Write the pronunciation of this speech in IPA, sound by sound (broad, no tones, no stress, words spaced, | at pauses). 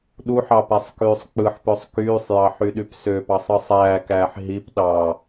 ɗuħɑ pæsˤkyːsˤk͡pɯħpøsˤ kyːsˤjɑħ yɗypsøpɑsˤ ɯsˤæːkæːħ ɦip ɗɑ